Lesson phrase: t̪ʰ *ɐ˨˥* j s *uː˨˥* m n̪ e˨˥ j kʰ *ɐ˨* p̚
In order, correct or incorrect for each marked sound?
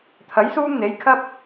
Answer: correct, incorrect: uː˥, incorrect: ɐ˥

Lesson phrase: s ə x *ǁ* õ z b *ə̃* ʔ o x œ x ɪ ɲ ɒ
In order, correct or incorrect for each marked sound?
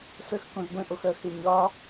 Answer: incorrect: k, correct

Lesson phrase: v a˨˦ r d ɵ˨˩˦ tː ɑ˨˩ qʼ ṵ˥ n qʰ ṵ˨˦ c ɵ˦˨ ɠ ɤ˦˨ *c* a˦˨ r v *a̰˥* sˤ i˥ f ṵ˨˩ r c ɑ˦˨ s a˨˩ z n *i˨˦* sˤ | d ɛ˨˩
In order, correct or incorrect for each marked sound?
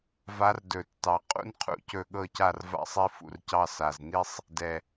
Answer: correct, correct, incorrect: i˥

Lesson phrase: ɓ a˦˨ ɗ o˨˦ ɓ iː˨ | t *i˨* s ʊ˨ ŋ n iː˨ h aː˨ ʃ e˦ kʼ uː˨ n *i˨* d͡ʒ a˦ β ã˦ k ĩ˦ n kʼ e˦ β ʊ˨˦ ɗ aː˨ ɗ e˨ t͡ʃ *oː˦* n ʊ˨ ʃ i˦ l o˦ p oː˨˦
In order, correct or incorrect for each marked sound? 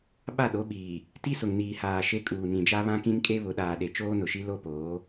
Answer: incorrect: i˦, incorrect: ĩ˨, correct

